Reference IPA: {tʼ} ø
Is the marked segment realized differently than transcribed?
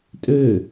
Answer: no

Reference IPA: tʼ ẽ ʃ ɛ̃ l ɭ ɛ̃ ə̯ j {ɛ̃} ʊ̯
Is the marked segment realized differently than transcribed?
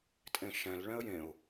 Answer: yes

